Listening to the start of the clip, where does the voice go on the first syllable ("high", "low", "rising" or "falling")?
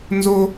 high